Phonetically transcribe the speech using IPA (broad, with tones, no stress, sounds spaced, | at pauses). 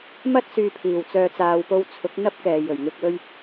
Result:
m ɐ˥ t̚ s yː˨ pʰ iː˨˩ w t͡s œː˨ t͡s aː˨ w p o˧ w t͡sʰ ʊ˨˥ k̚ n̪ ɐ˥ p̚ k ɛː˨ j ɵ˨˩ ɥ ŋ ɪ˧ k̚ w ɵ˥ ɥ